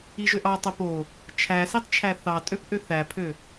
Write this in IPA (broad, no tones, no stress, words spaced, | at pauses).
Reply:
iʒøʔɑtˤo po | t͡ʃʰæsitˤ t͡ʃʰæθɑtʼøp ʔøθæpʰø